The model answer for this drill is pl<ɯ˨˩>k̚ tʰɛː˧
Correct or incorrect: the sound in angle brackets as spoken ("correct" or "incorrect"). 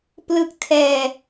incorrect